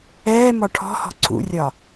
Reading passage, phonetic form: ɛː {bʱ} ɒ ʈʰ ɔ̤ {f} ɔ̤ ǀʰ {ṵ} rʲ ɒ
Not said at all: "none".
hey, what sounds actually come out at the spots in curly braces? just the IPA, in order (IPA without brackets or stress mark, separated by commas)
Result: m, h, ṵ